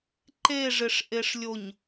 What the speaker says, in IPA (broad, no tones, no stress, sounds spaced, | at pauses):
ǃ e ʐ ɪ ʂ ʔ e ʂ lʲ o ɲ